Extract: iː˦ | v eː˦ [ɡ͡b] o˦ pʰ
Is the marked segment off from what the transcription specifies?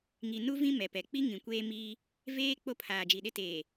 yes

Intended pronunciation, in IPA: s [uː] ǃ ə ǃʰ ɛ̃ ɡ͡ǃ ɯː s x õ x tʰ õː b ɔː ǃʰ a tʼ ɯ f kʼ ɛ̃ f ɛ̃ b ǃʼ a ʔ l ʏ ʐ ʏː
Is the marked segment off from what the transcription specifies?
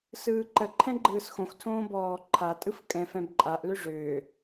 yes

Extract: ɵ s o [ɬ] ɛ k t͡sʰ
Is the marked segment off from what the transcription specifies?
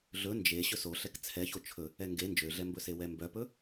no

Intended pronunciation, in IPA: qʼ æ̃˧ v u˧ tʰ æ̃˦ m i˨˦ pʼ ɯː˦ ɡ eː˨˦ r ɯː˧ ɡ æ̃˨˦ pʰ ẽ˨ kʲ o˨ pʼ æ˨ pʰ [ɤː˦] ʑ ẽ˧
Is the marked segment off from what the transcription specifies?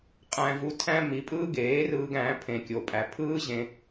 yes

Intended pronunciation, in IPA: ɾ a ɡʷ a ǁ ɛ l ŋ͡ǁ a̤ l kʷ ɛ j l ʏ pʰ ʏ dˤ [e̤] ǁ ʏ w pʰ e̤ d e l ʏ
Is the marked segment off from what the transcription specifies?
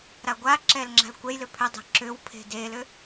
no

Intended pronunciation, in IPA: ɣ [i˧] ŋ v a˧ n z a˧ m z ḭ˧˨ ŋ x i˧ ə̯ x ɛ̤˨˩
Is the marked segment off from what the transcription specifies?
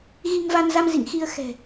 no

